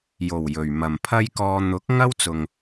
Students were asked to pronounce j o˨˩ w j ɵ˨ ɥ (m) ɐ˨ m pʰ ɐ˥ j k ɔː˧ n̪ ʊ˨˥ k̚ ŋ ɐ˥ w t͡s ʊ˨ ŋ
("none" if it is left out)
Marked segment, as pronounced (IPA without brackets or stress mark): m